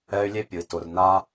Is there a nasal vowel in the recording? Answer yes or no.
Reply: no